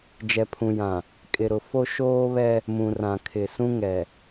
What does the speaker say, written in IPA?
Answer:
d͡ʒ ɛ˨ pʰ ũ˨ j ã˨ | kʼ ɪ˨ ɾ ʊ˨ f o˦ ʃ oː˦ β ɛ˦ | m ũ˨ r ã˨ kʰ ɪ˨ s ũ˦ ŋ ɛ˨

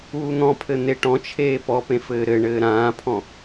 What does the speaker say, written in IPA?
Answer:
uː n̪ ɔ̃ pʰ ɘ n̪ e ʈ ɔ̃ t͡ʃʰ eː p ɔ p ẽ f ɘː ɾ ɘ ɳ ɘː ɾ ãː pʰ ɔ̃

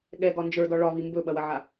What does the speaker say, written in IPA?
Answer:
ɠ ɛ ɡ ɒ n d͡ʒ ə˞ d ɒ ɭ ɒ β i m b ɵ ɓ ɐ w ɐ ʕ a

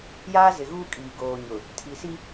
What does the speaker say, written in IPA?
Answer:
j aː˦ z ɪ˨ ɣ uː˦ kʼ iː˨ ɡ oː˨ ɲ ʊ˨ | tʰ i˨ s i˦

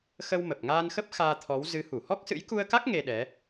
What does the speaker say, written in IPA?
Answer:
x ə˧ w m ə˨˩ p̚ ŋ aː˧ n x ə˦˥ p̚ x aː˧ t̪ʰ ɔ˨˦ w z ɨ˨˦ h u˧˩ h ɔ˦˥ k̚ s ɨ̰˧˥ j k u˧ ə̯ k a˦˥ k̚ ŋ e˧ ɗ ɛ˨˦

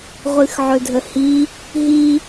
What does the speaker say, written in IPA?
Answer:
ʁʷ ɨ x ʕ ɵ dʱ ə h i | ɦ i

